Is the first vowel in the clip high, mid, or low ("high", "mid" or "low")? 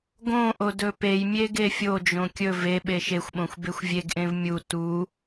mid